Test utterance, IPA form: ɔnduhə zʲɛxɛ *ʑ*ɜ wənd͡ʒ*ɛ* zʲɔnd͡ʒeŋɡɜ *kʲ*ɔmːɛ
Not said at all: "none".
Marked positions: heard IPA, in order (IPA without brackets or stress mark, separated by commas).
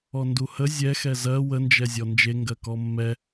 z, ɛ, k